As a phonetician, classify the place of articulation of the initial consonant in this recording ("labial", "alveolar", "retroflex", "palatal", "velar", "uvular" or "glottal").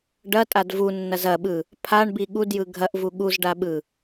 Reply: retroflex